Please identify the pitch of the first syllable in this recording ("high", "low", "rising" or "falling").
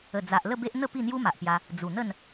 low